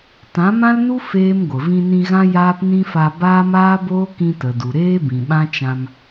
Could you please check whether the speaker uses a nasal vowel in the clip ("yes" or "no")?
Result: yes